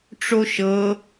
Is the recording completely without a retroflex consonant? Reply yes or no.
no